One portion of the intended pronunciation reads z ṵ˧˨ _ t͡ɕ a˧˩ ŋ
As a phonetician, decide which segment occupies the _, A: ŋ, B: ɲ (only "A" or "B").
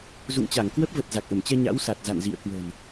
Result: A